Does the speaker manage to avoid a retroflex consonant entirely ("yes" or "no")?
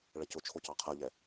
no